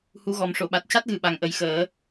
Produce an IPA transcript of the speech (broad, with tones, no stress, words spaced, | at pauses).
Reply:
hu˧˥ɣɔ˨˩m ʂo˨˩˨ɓa˨˩t̚ca˦˥t̚ɣɨ˨˩ ɓa˨˩ŋʔə˨˩jxəː˨˩˦